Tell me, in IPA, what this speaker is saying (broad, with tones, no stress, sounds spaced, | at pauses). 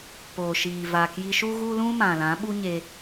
p oː˨ ʃ iː˨ v aː˨ k j i˧ ʃ u˦ ɣ u˦ l ũ˦ m ã˨ l ã˨˦ ɓ u˦ ɲ e˧